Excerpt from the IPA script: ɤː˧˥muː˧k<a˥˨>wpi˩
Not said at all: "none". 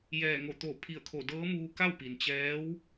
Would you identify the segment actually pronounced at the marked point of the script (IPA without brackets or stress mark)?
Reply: a˥˨